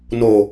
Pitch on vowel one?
low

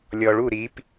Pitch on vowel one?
low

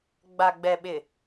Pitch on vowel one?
low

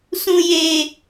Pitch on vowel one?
low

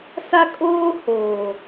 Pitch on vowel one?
high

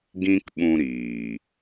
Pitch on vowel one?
high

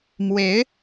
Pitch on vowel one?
rising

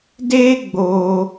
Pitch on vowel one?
high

